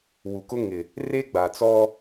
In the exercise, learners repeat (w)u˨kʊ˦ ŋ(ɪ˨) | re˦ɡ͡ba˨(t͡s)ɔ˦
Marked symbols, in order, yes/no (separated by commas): yes, yes, yes